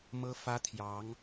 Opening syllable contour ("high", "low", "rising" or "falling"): high